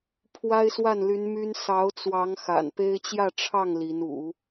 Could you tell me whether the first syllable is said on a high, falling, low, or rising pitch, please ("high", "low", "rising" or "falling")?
high